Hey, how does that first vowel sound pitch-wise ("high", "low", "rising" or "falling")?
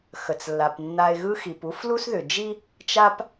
low